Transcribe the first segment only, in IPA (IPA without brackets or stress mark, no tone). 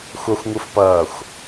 xʷ